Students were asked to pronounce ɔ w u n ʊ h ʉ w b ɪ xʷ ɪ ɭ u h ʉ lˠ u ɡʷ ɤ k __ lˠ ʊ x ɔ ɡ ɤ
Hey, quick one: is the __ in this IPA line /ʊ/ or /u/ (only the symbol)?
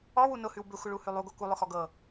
u